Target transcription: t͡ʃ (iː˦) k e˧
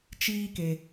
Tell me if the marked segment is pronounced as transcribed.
yes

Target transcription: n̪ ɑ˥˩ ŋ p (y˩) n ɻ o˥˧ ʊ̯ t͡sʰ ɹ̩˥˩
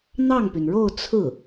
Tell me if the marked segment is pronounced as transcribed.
yes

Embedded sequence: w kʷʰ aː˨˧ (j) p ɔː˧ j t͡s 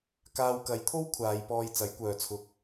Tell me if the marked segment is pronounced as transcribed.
yes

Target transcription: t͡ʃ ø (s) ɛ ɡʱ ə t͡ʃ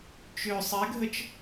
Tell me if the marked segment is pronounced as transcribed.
no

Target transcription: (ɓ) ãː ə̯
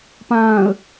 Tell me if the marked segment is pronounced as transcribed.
no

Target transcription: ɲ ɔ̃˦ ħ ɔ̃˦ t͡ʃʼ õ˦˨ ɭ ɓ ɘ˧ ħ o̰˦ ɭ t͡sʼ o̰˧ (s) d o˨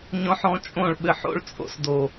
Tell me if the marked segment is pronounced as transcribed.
yes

